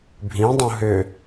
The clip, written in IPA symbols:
bʱ ĩ dˤ ũ ɦ ʏ

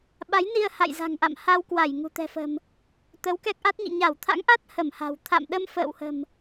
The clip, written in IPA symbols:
ɓ a˨˦ j n i˧ ə̯ h a̰˧˨ j z a̤˨˩ ŋ ʔ a̰˧˨ m h a˧ w k w a˧˩ j ŋ ṳ˨˩ t̪ ɛ̤˨˩ f ə̤˨˩ m | t̪ ə˨˦ w k ɛ˦˥ k̚ ʔ a˦˥ t̚ ɲ ḭ˧˨ ɲ a˧˩ w t̪ʰ a̰˧˥ ŋ ʔ a˦˥ t̚ h ə˧˩ m h a̤˨˩ w t̪ʰ a̰˧˨ m ɗ ə˧ m f ə̰ː˧˨ w h ə̤˨˩ m

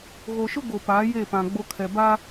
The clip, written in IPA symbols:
ɣ o˨ ʃ ʊ˦ ɡ o˨ p aː˨˦ j e˦˨ p ã˨ ɡ͡b o˦ kʰ ɛ˨ b a˦

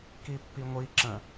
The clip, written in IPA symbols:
k i pː i ŋʷ i ǁ ə̃

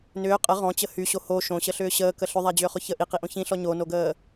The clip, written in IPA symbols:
n ʏː qʼ ə ʁ ɔ̃ t͡ɕ ə h y ɕ o h o ʃ õ ɕ ə ɬ ʏː ɕ əː k ə ɬ ʏ ðˤ a d͡ʑ ʏː χ ʊ ç ə ʔ i q i ʔ õ ç ĩ ɬ ɔ ɲ o n o ɡ əː

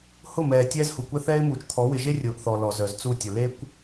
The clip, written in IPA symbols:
h ʊ˦˨ m ɛː˨ tʲ ɛː˦ z h u˨ kʷ ɛ˦ θ ɛː˦ ɪ̯ m uː˨ t͡ʃ t̪ʰ ɔ˨˦ w ɪ˨ ʒ e˦ rʲ ʊː˨ ʔ θ ɔ˨ l ɔ˨ z œ˨ z t͡s u˦˨ tʲ ʊ˨ l e˦ kʷ

